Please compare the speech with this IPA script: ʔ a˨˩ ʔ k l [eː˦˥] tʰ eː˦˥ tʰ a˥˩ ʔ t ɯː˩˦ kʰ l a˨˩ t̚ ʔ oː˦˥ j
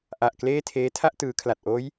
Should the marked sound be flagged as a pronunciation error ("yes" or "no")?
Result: yes